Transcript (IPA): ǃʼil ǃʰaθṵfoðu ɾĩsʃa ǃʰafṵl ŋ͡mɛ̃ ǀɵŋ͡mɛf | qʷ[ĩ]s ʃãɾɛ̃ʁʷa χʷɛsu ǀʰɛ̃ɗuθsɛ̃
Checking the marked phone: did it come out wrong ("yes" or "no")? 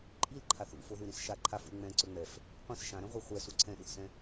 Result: no